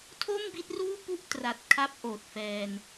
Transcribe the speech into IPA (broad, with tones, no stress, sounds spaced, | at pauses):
tʰ o˥˩ m b i˦˥ t̚ r uː˥˩ p u˥˩ ʔ t r a˨˩ t̚ kʰ a˦˥ p̚ ʔ oː˨˩ t̚ f ɛː˧ n